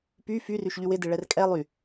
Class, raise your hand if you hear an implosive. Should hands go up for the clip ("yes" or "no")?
no